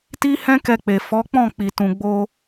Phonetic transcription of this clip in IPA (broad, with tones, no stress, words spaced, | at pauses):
ti˦hɛ̃˦kɛ˧k͡pe˨ fɔ˨˦k͡pɔ̃˦˨ k͡pi˨tũ˨ɡ͡bo˧